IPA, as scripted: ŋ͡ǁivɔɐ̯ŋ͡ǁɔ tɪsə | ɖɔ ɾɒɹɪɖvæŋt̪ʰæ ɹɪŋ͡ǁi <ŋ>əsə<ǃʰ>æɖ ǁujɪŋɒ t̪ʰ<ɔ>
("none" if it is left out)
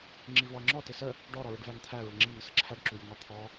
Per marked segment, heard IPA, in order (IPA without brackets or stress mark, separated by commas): ŋ, ǁʰ, ɔ